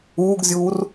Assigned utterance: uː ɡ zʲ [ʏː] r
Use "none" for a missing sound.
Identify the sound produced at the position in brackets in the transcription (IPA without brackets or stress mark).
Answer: uː